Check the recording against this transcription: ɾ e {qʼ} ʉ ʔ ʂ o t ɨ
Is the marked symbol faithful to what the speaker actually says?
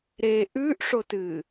no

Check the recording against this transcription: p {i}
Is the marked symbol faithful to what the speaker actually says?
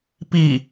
yes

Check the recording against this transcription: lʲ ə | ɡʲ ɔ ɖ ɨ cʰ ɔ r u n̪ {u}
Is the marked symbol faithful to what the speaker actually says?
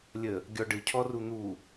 yes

